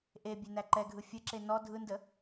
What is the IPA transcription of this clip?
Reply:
ʔe bʲenæǃɛɡʱɯ fʲəǁe nɔ dʱɯndə

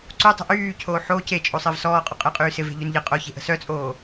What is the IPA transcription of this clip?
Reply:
ǀutˤə̤ ʔyːcʰoː ħoːc et͡ʃʼosˤɪːv sɔːqʼɔqʼɪːqʼyː sɪve̤ʎyn ʎɪ qʼoçe̤ʔə̤ sœt͡sʼoː

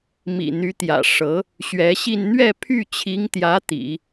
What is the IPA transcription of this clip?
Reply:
mḭ˨˩n̪y˧˥t̪jä̰˨˩ ʂɤ˧˥ | ɕɥɛ˧˥ɕi˥˧n n̪ɥɛ˥˧pʰy˥˩t͡ɕʰi˧˥ŋt̪jä˧˥ t̪ḭ˨˩˦

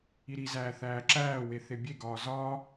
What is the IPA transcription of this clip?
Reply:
iɾizæː θæːǁæːwe θebʲeɡɒː zɒː

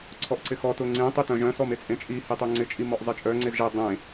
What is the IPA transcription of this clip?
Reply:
ǀʰɔʔǀɪxɔ tʊŋ͡ǀẽ tˤitœ̃ʒœ̃ sɔmet͡sʼẽt͡ʃʼi hitˤøŋ͡ǀɪ t͡ʃʼimɔʔzˤet͡ʃʼœ ŋ͡ǀezʒe dˤẽ

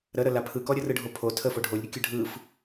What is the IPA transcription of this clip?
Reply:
ɾə ɾəlapʰɯkɔ ɾʲərɯɖʱopʰo tʰə foɖʱolʲɾʲəkʲə ɖʱɯf

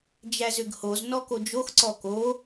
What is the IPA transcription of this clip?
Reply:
d͡ʒæzʏɡhoz nɔkod͡ʒox ǀɔko

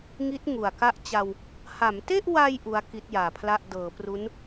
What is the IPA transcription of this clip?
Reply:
ŋi˦˥t̚ ŋu˨˩a̯ka˥˩ʔt͡ɕa˧w | ha˩˦mte˥˩ʔwa˧j ʔu˦˥a̯ki˦˥t̚jaː˨˩pʰla˥˩ʔ dɤː˩˦pru˦˥n

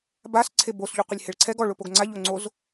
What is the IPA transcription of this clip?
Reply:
bas ǀʰebos ʎuqʷɪlʲheɭǀʰɛɡ ɔ ɭʊpoɡŋ͡ǀa ʎoŋ͡ǀoz

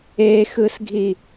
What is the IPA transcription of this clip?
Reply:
exɯsɡʱi

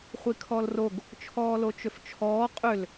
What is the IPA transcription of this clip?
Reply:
χʷikʰɔlroɡ | t͡ʃʰɔːlot͡ʃʏft͡ʃʰɔː qʼʏl

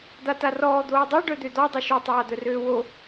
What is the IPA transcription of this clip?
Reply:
d̪atarɔː d̪oːdˤa ɖœd̪ød̪ɔ dˤoʃø tˤaːd̪œrøːwo

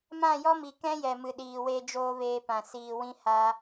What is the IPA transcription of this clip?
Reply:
mã˦˨jɔ˦mi˨kɛ̃˦ jɛ˨mɨ˨ ɗiː˨we˧ d͡ʒoː˦veː˧pã˨siː˧ wĩ˦ha˦

